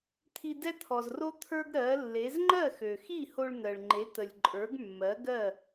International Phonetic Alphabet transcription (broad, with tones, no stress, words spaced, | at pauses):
t̪ʰi˧dɛ˥t̪ʰɔ˩zro˥ t̪ʰə˞˥ɡɾɜ˩˥lːe˩˥z ŋ͡ǃɜ˥˩xø˩xi˥˩ho˧ɭ n̪ɜ˩ɭŋ͡ǃe˩˥t̪ə˩lʲ ǃʼə˞˩˥ɡmːɜ˩˥ɡɜ˥˩